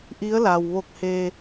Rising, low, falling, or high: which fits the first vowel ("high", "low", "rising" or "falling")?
rising